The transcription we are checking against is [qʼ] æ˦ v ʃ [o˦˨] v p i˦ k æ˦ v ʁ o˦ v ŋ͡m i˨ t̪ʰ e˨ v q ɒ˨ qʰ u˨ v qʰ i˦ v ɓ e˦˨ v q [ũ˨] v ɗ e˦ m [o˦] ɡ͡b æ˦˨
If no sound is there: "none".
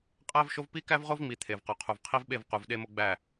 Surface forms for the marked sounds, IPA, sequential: qʼ, o˦, u˨, o˦

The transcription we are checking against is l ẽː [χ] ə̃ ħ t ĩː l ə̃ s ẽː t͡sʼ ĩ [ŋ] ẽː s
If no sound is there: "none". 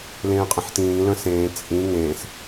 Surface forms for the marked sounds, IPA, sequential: qʼ, ŋ

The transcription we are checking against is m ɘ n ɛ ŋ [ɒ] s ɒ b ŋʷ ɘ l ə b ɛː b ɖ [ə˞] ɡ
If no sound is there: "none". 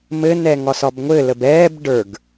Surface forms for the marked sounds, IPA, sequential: ɒ, ə˞

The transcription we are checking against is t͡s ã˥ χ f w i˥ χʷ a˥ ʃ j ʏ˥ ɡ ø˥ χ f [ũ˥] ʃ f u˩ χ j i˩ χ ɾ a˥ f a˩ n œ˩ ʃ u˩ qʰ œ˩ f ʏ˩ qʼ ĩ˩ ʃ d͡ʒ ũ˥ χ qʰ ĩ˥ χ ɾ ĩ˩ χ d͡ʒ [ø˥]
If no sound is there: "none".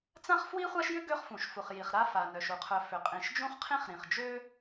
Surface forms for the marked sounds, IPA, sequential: ũ˩, ø˥

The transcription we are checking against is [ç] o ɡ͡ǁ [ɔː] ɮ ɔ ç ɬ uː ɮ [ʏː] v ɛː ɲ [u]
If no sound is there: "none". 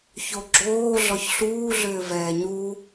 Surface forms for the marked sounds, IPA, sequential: ç, oː, ʏː, u

